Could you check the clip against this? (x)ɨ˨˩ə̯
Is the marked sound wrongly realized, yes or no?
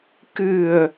yes